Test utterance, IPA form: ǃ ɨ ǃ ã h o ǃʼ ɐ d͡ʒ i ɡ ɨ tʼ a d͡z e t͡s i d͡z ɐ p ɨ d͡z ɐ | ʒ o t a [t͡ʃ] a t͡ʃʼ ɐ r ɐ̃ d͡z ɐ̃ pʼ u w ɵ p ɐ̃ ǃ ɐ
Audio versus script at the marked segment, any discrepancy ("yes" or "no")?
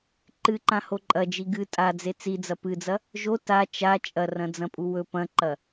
no